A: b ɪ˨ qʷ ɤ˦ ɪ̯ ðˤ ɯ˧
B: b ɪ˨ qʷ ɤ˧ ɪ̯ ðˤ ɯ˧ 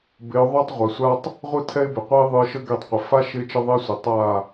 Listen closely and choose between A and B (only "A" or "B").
A